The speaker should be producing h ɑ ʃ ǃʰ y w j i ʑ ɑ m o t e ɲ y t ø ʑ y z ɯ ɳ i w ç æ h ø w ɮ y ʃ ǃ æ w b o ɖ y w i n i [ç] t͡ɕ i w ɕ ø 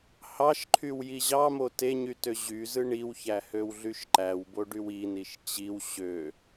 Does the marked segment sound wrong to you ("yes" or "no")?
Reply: yes